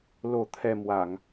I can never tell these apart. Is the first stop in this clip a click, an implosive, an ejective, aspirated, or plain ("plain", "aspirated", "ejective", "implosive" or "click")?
aspirated